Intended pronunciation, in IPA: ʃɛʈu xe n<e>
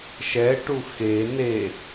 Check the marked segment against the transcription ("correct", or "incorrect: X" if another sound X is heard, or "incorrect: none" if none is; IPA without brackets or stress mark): correct